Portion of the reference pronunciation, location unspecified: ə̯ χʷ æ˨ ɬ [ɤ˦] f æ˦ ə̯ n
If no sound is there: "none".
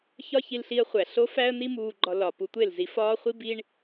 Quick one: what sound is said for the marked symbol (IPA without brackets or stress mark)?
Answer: o˦